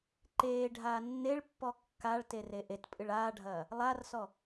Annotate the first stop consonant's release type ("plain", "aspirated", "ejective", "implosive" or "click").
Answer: click